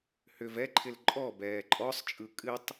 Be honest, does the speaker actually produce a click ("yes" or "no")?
yes